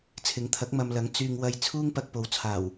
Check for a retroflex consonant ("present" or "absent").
absent